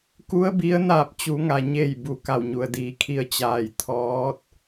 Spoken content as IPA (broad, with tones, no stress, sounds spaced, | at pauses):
k u˧˥ ə̯ b i˧˥ ə̯ n aː˧˩ p̚ t͡ɕ u˩˧ ŋ a˩ ɲ e˧˩ j b u˩ k a˧˩ w ɲ u˩ ə̯ d iː˩˧ kʰ i˧ ə̯ t͡ɕ aː˧˩ j t̪ʰ ɔː˧˥ t̚